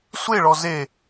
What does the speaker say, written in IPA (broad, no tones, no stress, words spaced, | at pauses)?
sʷeɭɔ ze